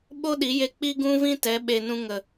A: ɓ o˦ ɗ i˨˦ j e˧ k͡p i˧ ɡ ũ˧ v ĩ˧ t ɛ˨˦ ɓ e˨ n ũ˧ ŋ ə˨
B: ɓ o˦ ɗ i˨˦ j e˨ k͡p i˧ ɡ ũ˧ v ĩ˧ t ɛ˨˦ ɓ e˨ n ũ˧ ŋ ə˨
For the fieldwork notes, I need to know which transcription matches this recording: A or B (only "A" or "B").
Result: A